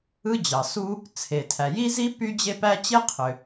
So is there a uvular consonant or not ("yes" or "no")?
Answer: yes